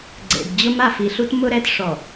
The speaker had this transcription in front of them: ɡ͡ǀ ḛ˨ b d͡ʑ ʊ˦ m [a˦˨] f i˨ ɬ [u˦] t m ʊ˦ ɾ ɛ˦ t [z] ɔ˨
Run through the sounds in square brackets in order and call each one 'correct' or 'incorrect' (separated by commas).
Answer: correct, correct, incorrect